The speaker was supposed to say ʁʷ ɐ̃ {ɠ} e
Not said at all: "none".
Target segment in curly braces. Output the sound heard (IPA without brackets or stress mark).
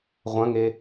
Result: ŋ